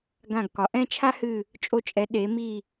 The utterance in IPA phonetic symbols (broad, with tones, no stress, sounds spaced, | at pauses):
ɡ ã˧˩ ɡ k ɒ˩˧ ʔ ɛ̃˥˧ t͡ʃʰ a˥ h ɨ˧˩ | t͡ʃʼ o˧ t͡ʃʼ ɛ˩˧ ɗ e˩˧ m i˧˩